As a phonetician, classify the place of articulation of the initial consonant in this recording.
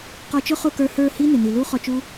uvular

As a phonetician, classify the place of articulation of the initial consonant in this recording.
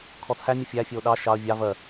velar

